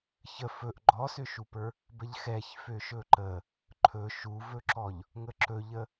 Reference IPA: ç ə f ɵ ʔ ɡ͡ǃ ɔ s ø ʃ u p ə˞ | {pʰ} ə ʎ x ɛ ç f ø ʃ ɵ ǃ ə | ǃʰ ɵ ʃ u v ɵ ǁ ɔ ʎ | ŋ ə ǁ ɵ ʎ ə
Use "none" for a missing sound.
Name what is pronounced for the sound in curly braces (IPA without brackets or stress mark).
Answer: b